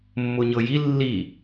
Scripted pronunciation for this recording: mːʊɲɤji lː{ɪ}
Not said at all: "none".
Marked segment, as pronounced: i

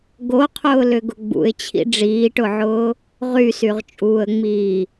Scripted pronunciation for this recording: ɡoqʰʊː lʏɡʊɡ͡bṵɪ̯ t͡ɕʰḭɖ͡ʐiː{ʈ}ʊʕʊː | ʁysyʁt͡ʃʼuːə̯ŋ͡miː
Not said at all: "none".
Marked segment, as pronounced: ʈ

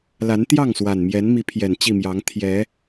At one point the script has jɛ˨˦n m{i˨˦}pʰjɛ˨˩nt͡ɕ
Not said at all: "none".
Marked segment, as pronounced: i˨˦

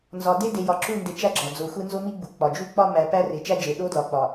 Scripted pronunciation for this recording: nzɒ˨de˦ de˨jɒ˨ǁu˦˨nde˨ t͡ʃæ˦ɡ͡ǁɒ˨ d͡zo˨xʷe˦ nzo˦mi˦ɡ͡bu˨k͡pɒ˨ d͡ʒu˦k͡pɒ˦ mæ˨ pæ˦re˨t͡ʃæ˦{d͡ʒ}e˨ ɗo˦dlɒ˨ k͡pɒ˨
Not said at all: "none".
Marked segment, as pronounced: d͡ʒ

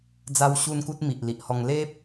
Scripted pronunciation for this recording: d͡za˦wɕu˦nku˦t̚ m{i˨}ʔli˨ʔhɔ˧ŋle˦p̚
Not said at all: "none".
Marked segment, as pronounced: i˨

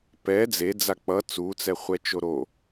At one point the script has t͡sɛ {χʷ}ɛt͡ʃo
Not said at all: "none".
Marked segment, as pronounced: χʷ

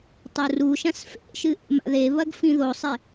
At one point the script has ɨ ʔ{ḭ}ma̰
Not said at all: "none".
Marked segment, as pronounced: ḛ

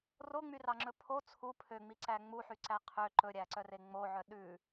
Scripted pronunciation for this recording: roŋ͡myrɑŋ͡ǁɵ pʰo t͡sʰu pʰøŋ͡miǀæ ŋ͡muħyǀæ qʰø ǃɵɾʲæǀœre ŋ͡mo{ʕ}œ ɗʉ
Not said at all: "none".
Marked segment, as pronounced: ʕ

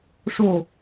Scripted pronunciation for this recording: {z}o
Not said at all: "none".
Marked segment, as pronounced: ʂ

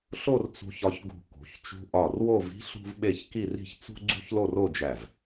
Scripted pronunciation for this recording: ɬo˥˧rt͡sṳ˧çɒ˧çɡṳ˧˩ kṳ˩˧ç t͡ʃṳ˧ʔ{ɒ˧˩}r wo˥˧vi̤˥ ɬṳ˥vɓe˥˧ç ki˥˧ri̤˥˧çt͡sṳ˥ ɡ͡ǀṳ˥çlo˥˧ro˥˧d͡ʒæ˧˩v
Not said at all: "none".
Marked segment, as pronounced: ɒ˧˩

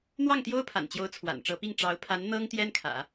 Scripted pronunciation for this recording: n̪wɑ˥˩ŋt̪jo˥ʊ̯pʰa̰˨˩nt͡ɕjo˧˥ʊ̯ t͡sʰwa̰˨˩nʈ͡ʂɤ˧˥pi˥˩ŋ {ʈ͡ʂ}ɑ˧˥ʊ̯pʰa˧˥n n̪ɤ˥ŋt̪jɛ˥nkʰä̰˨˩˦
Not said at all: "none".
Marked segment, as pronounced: ʈ͡ʂ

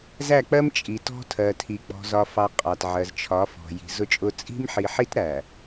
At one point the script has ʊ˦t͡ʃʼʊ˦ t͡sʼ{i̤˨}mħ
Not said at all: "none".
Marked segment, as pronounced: i̤˦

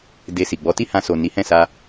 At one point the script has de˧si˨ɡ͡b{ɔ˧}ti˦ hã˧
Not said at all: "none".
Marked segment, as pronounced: ɔ˨˦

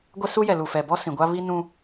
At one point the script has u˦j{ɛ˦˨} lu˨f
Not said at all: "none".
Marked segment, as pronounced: ɛ˨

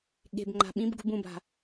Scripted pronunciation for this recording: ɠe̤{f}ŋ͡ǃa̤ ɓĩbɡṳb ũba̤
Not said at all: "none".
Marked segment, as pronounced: b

